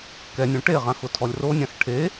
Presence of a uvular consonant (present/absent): present